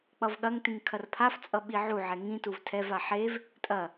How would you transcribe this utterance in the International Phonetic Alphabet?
k͡pʌvɠɐŋtĩŋ kʰɐrpʰaft͡sʼʌ ɓiʕuʕɛ ŋĩtuv tʰɛva ħev | tʼɐ

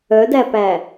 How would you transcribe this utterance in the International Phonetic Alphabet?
œdæpæ

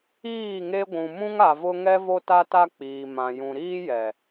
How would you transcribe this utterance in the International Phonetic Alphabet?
iː˦˨ŋe˦ɡʷũ˨ mũ˦ŋa˨vʊ˦ ŋɛ˦ vo˦ta˦ta˦ k͡piː˨mã˨ jũ˨ɾiː˦jɛ˨

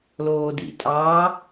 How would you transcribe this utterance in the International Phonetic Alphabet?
loːdḭtʼɑ

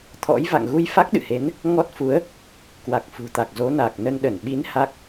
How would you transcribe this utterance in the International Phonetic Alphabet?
t̪ʰɔ̰˧˥jva̰˧˨ŋ ɣu˧jfa˦˥k̚ɗɨ̰˧˨he˨˦n | ŋɔ˦˥t̚fu˨˦ə̯ | kwa˨˩k̚fṳ˨˩t̪a˨˩k̚ zo˨˦na˨˩k̚nə˧nɗə˧˩n ɓi˨˦n ha˦˥k̚

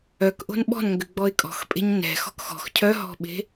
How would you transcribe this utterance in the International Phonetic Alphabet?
œkʔo̤n ɓɔ̤nŋɡʏɡ͡bɔɪ̯ kʼɔ̤xpʼe̤ɲ nɛ̤xɔ̤k xɔ̤x cʰœɦɔ̤ɓe̤

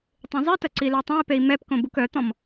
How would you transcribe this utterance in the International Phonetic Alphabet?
tˤĩzˤitɐ ǀiløtˤœ̃i̯pei̯ mɛpkõ bukœt̪ɔ̃m

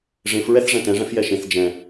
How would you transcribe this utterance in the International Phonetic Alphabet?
ʐẽfɹɛθ ʐɛ̃tɛ̃ʐɛ̃fjɛ ʃẽθ d͡ʒɛ̃

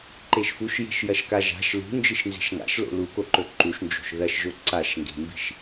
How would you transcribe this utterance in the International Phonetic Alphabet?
ǃeʃfuʃ je̤ʃjɐʃka ʒa̤ʃ lṳ nd͡ʒɨʃnze̤ʃŋa̰ʃlo̰ lukoǃɵ ǃuʃ nd͡ʒo̤ʃðɐʃʒɵ ǀaʃŋɡe̤mbi̤ʃ

